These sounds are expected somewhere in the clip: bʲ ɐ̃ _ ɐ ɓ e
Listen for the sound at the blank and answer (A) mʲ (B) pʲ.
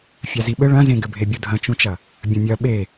A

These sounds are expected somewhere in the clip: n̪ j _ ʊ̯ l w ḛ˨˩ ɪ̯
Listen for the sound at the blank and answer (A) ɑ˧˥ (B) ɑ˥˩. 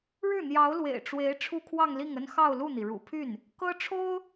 A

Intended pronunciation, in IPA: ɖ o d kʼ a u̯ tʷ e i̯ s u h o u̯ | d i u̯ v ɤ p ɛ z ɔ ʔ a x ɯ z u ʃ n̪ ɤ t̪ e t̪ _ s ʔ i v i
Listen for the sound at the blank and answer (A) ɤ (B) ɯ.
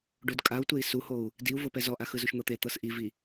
A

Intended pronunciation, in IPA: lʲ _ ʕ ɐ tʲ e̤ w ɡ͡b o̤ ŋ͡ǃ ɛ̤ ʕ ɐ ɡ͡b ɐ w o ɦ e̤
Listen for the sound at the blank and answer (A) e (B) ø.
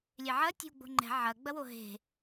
A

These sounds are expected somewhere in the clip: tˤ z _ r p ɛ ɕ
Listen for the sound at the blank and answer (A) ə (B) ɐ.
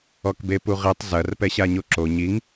B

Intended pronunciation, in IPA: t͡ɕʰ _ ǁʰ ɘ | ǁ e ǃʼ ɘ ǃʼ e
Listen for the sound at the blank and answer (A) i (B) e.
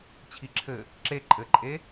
A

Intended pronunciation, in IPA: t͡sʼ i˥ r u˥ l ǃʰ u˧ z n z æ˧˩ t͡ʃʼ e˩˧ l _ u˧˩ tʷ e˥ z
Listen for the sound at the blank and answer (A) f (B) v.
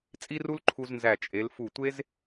A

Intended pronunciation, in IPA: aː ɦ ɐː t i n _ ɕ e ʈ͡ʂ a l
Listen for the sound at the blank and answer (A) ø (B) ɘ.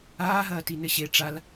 B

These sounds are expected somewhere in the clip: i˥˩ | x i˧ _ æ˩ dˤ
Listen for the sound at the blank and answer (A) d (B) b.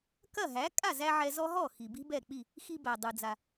B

